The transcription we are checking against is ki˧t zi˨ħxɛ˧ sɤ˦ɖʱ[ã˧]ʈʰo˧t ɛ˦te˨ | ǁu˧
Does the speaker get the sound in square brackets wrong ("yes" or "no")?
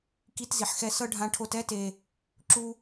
no